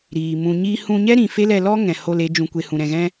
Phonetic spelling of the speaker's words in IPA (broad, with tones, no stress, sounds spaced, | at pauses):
ɾ iː˨ m ũ˧ ɲ iː˦ h ũ˧ ɲ ɛ˦ ɾ ĩ˨ f e˦ l ɛ˧ l ɔ˦ ŋ ɛ̃˨ h o˧ l e˨˦ d͡ʒ ũ˧ kʷ e˧ h ũ˧ ɾ ɛ̃˧ ɣ ɛ̃˦